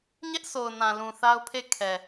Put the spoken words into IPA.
ɲ ɛ˦ ʔ sʰ o˨ ʊ̯ n ã˨ l ũ˨ θ a˦ ʊ̯ pʰ e˦˨ kʰ ɛ˨

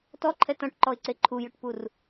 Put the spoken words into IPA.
t ɔ ǃʰ ɛ t ɔ̃ ʈ ǃ ɔ ɪ̯ ǀ e ǃʰ u j ɵ ʈ p u r

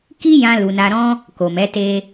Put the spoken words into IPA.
k i˦ j ã˧ l u˨ n a˧ ɾ ɔ̃˦ | k o˨ m ɛ˨˦ t e˧

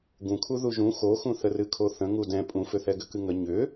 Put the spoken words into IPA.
ɡ ũ kʰ u ð u ʒ ũ x o x ũ θ ə r ɨ kʰ o θ ə̃ ŋ u d ɛ̃ pʼ ũ f ʏ θ ɛ ɡ ʏ k ɨ ŋ ə ɲ ʏ

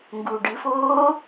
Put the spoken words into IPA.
ŋ ɡ u ɖ ɨ f oː

